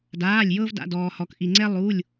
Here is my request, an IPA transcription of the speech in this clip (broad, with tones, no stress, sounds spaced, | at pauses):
d aː˩˧˩ lʲ j ɤ˧ v d a̰˩˧˩ d ɔː˩ h ɔ˩ k ʔ i˩ ŋ͡ǀ ɛ˧ lˠ uː˩˧˩ lʲ